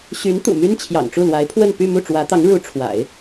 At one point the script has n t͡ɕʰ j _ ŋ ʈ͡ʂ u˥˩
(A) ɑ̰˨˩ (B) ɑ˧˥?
A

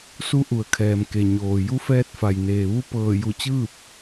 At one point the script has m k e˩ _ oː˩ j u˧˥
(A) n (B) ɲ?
B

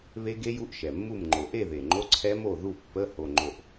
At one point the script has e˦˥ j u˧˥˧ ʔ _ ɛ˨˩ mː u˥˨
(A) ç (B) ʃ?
B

